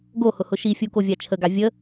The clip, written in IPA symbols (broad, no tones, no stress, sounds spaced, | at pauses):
ɡ o h ʊ h ʊ ʃ i fʲ u k o vʲ a t͡ʃʰ ə ɡ a vʲ ə